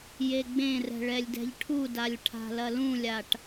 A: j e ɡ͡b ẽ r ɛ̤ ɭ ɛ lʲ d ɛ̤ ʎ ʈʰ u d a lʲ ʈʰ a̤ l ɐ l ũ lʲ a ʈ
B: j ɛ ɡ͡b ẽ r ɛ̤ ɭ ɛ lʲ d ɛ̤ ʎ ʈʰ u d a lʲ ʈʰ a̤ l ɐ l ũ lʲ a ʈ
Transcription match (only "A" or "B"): A